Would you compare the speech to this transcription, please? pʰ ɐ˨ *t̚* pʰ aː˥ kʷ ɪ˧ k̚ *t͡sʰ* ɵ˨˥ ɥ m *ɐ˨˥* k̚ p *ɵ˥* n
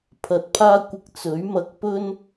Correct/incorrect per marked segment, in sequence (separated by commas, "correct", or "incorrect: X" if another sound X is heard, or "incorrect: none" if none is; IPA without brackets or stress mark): correct, incorrect: t͡s, incorrect: ɐ˧, correct